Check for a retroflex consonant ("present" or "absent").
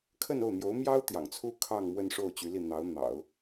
present